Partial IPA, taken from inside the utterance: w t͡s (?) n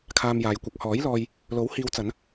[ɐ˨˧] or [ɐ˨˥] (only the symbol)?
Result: ɐ˨˧